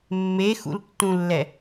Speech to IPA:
mːexṵltːũlːɛ

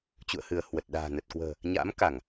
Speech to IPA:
t͡ɕṵ˧˨ə̯hɨ˧˩ə̯ hwə˨˩t̚ɗa̤ː˨˩ nə˨˩t̚kwə̤ː˨˩ | ɲa̰ː˧˥mka˧˩˨ŋ

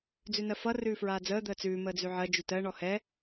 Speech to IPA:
d͡zʉnɜfʌ rʉːfɹaːd͡zəː d̪əːt͡sʉː məːd͡zʉʕɜ d͡ʒʉtɜ ɳɔhɛ

